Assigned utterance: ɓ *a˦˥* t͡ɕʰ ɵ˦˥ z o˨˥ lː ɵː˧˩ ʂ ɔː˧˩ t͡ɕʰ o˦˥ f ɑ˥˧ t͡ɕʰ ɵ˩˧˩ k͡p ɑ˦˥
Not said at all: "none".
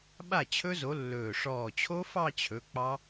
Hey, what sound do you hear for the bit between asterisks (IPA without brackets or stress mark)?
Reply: a˥˩